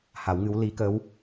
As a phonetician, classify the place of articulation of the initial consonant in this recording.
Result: glottal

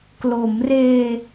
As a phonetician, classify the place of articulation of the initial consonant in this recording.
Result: velar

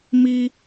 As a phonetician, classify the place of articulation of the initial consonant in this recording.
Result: labial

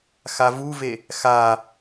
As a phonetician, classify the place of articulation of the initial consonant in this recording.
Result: velar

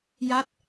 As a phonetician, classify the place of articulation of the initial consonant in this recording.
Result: palatal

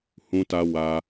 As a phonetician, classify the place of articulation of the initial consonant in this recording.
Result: glottal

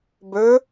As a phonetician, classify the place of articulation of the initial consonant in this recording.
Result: labial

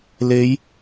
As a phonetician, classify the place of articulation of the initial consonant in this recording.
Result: alveolar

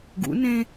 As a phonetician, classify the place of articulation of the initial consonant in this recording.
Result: velar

